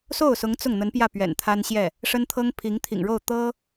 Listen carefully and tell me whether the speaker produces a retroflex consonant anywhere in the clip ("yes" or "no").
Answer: yes